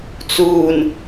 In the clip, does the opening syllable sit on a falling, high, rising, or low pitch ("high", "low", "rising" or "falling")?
low